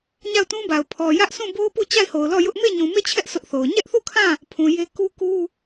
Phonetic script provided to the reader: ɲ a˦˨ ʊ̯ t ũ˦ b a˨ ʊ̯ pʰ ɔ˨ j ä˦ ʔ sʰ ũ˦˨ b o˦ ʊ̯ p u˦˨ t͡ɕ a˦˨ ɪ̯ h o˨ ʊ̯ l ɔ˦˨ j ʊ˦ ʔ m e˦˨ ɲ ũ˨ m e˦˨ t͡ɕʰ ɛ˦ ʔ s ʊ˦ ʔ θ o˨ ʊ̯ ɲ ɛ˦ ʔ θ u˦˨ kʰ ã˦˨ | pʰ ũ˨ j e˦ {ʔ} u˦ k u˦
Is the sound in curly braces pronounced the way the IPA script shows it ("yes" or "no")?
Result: no